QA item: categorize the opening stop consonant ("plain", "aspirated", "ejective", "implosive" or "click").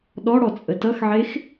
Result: implosive